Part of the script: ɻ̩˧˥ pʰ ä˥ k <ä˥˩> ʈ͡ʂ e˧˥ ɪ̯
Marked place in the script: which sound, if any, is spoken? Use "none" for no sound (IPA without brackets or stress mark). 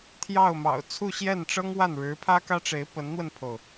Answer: ä˥